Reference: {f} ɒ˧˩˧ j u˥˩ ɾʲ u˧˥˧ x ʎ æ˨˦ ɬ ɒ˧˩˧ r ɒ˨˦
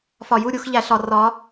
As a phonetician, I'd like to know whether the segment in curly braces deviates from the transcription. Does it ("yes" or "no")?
no